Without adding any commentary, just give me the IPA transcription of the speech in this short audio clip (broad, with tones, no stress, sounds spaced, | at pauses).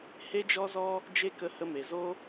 h e˦ d͡ʒ ɔ˦ z ɔ˦ | d͡ʒ e˦ k ə˧ h ə˧ m e˨ z o˦